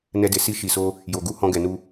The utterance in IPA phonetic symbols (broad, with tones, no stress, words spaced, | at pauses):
nɛ˧de˨ si˧ʃi˨so˧ | jo˨ɡu˨˦ hɔ̃˧ɡɛ˨nu˧